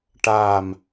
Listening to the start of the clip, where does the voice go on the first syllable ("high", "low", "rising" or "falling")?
falling